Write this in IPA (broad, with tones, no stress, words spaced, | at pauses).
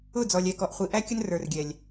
ʊ˦˨d͡zɔ˨lʲɛ˨ kɔ˨ʔχʷi˨ʔæ˦ kʲə˦nrə˞˨rɡʲɛ˨lʲ